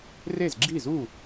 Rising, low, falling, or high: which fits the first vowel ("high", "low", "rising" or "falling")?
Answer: falling